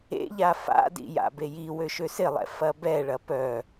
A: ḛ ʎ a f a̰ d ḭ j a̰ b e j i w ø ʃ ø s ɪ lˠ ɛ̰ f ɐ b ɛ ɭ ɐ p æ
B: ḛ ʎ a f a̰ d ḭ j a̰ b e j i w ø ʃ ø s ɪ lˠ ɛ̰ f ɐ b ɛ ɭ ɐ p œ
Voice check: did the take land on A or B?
B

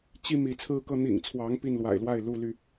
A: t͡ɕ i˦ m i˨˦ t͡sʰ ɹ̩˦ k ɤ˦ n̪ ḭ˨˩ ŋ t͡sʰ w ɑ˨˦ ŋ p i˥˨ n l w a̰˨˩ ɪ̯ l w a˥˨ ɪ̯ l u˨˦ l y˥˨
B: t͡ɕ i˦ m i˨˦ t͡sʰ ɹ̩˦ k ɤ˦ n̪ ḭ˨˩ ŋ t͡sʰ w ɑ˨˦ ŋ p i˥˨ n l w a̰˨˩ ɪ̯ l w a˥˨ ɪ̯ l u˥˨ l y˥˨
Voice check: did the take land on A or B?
B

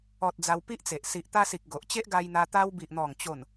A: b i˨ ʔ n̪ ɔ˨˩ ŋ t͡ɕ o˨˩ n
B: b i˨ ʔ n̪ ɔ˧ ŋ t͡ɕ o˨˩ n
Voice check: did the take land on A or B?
A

